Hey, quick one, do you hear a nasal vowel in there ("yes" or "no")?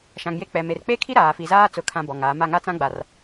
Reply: yes